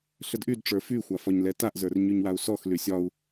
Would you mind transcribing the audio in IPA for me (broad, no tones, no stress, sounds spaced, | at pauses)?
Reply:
ɬ ə d ʔ y d ʈ͡ʂ ə˞ f y xʷ a f ɒ ɲ l ɛ t a ʔ z ə˞ r ɲ y ɲ w a u̯ s ɔ x l y sʲ ɒ u̯